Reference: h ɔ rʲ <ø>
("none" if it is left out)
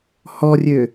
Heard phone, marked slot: ø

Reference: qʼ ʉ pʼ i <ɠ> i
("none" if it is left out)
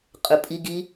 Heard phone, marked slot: ɡ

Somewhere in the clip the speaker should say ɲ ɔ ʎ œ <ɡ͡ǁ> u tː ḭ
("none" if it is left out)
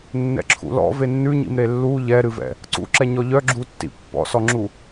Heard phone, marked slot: ɡ͡ǁ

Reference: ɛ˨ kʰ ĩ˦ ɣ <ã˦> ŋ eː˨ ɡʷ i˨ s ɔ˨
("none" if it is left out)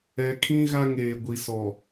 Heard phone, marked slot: a˦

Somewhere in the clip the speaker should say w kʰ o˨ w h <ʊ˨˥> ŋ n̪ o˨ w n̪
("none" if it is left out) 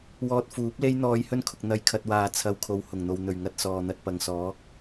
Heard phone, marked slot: ʊ˨˩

